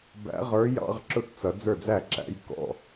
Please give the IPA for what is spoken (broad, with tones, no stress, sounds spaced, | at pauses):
b æ̰˨˦ ʁ ə˞˨˦ j ɑ̰˧˥˧ ʁ ǁ ʊ˥˩ t t͡s ʌ˨˦ d͡z ə˞˥˩ d͡z æ˥˩ ǁ æ̰˧˥˧ j k ɔ̰˧˥˧